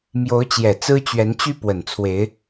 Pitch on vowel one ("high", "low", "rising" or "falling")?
rising